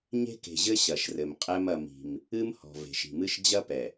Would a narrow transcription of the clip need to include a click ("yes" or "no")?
no